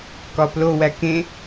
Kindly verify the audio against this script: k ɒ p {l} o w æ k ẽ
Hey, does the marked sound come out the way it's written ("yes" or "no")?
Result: yes